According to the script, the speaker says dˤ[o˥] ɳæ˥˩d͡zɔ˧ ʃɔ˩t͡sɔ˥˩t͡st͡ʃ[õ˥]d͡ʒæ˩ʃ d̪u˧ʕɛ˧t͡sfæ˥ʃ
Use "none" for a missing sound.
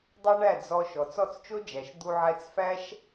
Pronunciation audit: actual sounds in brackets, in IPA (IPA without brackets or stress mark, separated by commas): o˥, o˥